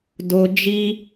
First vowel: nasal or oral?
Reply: oral